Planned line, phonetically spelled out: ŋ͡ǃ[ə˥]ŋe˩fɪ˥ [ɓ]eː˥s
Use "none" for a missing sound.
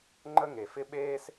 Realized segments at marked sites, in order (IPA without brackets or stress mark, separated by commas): ə˥, ɓ